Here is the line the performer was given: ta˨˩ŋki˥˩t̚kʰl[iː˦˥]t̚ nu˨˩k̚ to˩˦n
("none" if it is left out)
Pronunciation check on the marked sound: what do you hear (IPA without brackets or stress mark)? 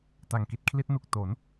i˦˥